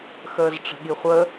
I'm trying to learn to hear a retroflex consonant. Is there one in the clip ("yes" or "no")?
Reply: yes